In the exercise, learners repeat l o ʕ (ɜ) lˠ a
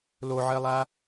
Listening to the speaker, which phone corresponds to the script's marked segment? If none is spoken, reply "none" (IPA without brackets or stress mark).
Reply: ɜ